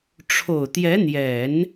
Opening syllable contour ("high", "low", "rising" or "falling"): low